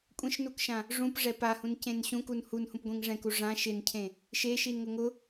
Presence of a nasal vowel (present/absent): present